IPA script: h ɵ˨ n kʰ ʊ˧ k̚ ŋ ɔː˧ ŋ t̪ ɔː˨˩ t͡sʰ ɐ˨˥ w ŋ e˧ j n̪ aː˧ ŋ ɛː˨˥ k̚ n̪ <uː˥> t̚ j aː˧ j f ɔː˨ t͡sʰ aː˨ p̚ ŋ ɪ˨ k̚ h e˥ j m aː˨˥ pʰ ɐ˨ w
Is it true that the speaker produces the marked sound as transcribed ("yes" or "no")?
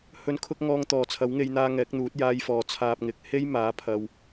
no